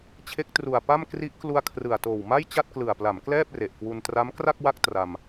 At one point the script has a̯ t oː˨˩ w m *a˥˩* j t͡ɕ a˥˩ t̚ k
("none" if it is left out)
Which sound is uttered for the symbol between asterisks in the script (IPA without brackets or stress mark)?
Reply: a˥˩